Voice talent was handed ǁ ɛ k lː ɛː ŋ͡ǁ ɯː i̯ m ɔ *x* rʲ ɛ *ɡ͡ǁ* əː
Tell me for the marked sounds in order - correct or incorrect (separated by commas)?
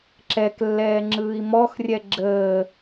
correct, correct